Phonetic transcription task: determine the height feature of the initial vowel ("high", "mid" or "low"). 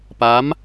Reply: low